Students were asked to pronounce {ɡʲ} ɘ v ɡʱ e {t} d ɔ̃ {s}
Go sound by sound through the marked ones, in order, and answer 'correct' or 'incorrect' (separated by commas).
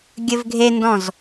correct, incorrect, incorrect